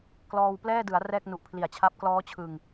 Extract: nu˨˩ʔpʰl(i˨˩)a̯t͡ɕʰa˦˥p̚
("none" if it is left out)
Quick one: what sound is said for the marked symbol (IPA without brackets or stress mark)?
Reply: i˨˩